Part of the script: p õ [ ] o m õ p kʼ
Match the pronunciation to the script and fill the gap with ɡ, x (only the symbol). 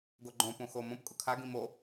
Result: x